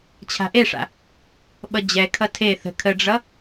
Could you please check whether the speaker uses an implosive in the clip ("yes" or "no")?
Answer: yes